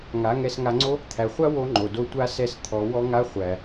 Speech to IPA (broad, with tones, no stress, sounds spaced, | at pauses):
ŋ a˨˦ ŋ ɛ˧ s ŋ a˧ ŋ͡ǀ o˦ | t̪ʰ æ˨ χʷ a˦ w o˦ ŋ͡ǃ o˨ d o˧ tʷ a˦ s ɛ˦˨ s t̪ʰ ɔ˨˦ w ɔ˦ ŋ a˦ χʷ æ˨